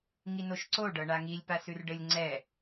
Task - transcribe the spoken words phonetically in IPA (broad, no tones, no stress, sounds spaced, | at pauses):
ŋ i n o ʃ ǀ o ɖ ɤ ɳ a ŋ i lʲ p a s ʉ r ɖ ɘ lʲ ŋ͡ǀ ɛ